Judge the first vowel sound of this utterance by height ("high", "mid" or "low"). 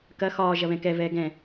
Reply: low